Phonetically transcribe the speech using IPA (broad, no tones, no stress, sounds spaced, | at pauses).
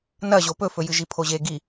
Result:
n ɐ ʑ o p ɵ f ɵ j ɨ ʒ i pʰ o ʑ e ɡ i